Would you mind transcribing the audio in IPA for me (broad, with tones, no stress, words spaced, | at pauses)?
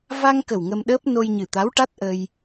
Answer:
va˧ŋkə˨˩w ŋə˧mɗəː˦˥p̚ no˧jɲɨ˨˩t̪a˧˥wʈa˦˥t̚ ʔə˧j